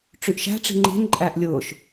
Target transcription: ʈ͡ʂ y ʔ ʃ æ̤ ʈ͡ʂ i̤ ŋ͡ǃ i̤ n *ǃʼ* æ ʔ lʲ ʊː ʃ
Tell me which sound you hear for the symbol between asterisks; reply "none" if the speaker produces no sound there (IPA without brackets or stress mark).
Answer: ǃʼ